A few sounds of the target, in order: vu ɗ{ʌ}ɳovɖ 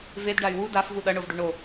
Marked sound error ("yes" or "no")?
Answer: no